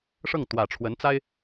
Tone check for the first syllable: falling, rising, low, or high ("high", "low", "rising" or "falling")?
falling